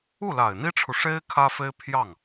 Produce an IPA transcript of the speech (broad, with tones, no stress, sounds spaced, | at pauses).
u˥˩ l a˨˩ ɪ̯ n̪ i˥ ʈ͡ʂʰ u˨ ʂ e˥ ɪ̯ kʰ ä˥ f e˥ ɪ̯ pʰ j ɑ˥˩ ŋ